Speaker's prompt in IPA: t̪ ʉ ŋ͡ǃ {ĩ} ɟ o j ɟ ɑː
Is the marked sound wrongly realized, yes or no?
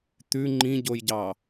no